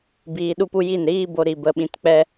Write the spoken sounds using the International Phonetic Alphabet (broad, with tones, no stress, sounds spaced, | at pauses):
b iː˧ ɗ u˦ p u˦ j i˦˨ n ɾ iː˦ b o˧ ɾ i˨ b ə˧ ɓ ĩ˧ t k͡p ɛ˦